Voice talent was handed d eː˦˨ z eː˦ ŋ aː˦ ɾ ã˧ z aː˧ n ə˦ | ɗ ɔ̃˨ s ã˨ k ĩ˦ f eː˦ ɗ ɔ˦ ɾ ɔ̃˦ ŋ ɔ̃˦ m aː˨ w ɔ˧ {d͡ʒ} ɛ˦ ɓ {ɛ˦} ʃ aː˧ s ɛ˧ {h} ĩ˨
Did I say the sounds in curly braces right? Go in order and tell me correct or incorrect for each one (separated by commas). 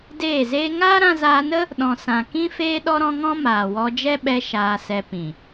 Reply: correct, incorrect, incorrect